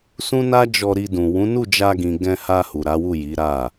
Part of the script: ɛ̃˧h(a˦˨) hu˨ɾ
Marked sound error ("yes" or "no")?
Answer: yes